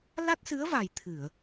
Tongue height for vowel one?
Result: low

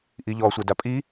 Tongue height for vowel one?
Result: high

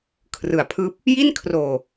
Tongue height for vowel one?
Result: high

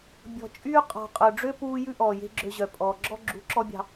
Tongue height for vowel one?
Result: mid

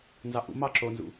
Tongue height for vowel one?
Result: low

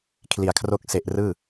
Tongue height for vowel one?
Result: high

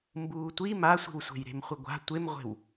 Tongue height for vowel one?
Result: high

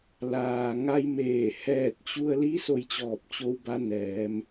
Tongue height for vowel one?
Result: low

